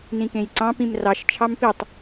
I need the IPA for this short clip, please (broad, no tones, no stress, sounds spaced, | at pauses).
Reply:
n ĩ k ẽ j ǀ ɑ̃ p ĩ m r ɑ ʃ t͡ʃʰ ɑ m p i tˤ